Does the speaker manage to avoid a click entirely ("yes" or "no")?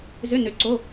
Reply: no